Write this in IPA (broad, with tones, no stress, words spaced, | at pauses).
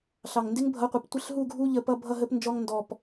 ɬɑ˨˩ŋndɪ˦˥ŋbʱʌ˨˥qʷʌ˨˩p tʷɪ˥˨ɬɦu˥˨ɡʱu˦˥ ʎə˦˥pʌ˦˥ bʱʌ˥˨ɦə˦˥pnd͡ʒɔ˦˥ŋ ndɔ˨˩p